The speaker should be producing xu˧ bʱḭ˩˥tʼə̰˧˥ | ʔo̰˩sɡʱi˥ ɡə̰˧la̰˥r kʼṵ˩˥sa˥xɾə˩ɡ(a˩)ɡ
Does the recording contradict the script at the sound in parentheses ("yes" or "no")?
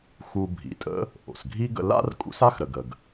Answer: yes